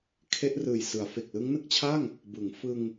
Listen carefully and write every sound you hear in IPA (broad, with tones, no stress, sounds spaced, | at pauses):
kʰ e˦˥ ʔ r ɯː˨˩ j s ɯ˩˦ a̯ f e˨˩ k̚ l ɯ˦˥ ŋ n ɯ˦˥ k̚ t͡ɕʰ a˥˩ ŋ | b ɯ˩˦ ŋ f ɯ˧ ŋ